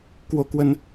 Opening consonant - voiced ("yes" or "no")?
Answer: no